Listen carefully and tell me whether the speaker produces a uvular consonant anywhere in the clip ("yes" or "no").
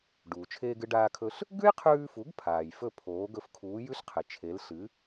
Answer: yes